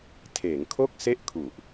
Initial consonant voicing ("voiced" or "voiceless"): voiceless